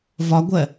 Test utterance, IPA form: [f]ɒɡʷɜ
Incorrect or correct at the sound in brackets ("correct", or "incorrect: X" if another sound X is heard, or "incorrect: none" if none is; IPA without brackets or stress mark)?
incorrect: v